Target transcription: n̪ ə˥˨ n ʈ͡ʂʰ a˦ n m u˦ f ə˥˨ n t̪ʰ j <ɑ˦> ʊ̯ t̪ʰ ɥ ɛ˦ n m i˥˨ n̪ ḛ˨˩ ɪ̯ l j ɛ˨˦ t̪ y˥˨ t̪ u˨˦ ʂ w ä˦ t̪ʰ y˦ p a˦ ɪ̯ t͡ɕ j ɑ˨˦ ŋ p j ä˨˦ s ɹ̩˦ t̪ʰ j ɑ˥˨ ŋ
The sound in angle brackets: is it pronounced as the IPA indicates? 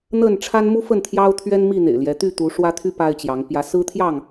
yes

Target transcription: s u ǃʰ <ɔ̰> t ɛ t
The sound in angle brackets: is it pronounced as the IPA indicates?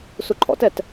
yes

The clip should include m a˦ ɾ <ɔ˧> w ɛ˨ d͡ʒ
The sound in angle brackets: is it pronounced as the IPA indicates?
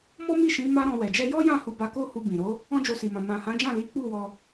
no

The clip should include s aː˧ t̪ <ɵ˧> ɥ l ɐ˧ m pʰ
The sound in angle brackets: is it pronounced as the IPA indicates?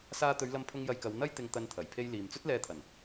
no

